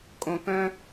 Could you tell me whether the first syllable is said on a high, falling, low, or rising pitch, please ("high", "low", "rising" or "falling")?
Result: low